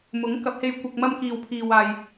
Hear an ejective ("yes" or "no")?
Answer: no